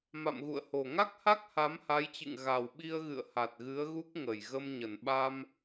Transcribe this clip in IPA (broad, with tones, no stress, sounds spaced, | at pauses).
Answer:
m a̰˧˨ m ɣ ṵ˧˨ ə̯ h o˨˩ ŋ a˦˥ k̚ h a˦˥ k̚ h a˨˦ m h a˨˦ j t͡ɕ ɨ̰˧˨ ŋ ɣ a˨˩ w ɓ i˧ ə̯ ɣ ɨ̰˧˨ ə̯ h a˨˩ t̚ ɣ ɨ˨˦ ə̯ ɣ u˦˥ k̚ ŋ ə˨˩ j ɣ ə˧ m ɲ ə˨˩ n ɓ a˧ m